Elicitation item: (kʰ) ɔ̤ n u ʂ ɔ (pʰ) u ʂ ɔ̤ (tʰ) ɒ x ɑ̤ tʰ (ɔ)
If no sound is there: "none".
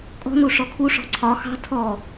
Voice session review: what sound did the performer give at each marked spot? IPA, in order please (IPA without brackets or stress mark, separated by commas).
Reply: kʼ, kʰ, ǀʰ, ɔ